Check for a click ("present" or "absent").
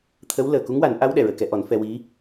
absent